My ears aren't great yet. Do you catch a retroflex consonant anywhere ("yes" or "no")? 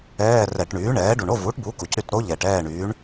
yes